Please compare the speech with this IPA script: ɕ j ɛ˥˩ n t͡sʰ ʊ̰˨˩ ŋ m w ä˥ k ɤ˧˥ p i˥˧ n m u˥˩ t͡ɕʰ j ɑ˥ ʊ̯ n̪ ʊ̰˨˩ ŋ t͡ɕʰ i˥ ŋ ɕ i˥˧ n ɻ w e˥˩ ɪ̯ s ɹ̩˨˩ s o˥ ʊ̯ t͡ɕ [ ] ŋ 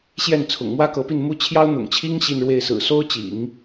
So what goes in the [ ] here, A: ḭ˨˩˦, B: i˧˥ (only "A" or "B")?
A